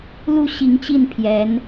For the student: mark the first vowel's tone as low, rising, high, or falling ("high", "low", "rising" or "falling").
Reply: falling